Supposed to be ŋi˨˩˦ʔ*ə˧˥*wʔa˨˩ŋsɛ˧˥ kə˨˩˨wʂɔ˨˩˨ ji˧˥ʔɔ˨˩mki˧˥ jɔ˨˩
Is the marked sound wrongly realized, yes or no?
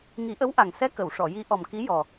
no